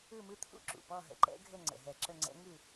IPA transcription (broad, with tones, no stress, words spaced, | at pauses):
ɯ˦˨mɯ˧˥t̪ʰṵ˦˨ ǁṵ˨˩pɔ˦˨ɦə̰˨˩ ǃɛ̰˧˥ ɡʱə˦˨ ŋ͡ǀə̰˨˩ɦɛ˧˩˧ǁə˦˨ŋ͡ǀɛ̰˧˥ ŋɯ˦˨